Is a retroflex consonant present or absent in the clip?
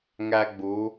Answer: absent